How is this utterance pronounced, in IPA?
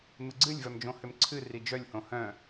m ɨ ɡ͡ǀ ɨ lʲ v œ m d͡ʒ õ h ʏ m ǀʰ ɨ r i d͡ʒ œ lʲ h õ h œ̃

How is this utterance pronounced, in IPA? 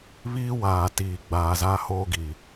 β iː˦ w aː˨ t iː˨ ɡ͡b aː˨ z a˦ h oː˦ ɡ i˨

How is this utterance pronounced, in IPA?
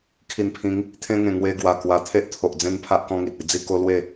kʰ i˨˩ n pʰ ĩ˨˦ ŋ | t̪ʰ ẽ˧ ŋ ẽ˨˩ ŋ w e˧ ɡ w a˨˩ k w a˧ t̪ʰ e˦ ʔ t̪ʰ o˨ ʔ d͡z ẽ˦ n pʰ a˦ ʔ k ɔ̃˦ ŋ i˨ t̚ i˧ d͡z i˥˧ k o˦ l w e˥˧

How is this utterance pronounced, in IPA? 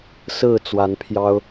s ɹ̩˥˨ t͡s w a˨˦ n pʰ j ɑ˦ ʊ̯

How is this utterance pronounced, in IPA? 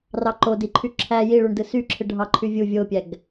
r ɑ ǃ o d i ǃʰ y ǁʰ æ j i ɭ u ɳ d ɯ s y ǁʰ ɯ ɖʱ ɑ ǃʰ y vʲ u vʲ o pʲ æ ɡ

